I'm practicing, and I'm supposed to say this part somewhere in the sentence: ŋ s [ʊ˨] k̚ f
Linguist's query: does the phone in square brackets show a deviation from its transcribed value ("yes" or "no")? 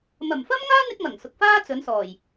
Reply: no